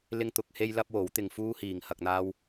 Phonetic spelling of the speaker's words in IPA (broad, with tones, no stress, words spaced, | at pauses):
lɪ˥ŋt̪ʊ˨˥k̚he˥j lɐ˥p̚wo˨˥w t̪ɪ˧ŋ fuː˥hiː˨ŋ hɐ˧k̚n̪aː˥w